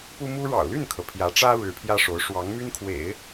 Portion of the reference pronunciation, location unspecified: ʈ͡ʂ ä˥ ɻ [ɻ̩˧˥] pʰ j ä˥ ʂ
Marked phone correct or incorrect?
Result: correct